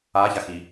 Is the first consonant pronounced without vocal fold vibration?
yes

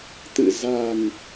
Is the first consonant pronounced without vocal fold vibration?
yes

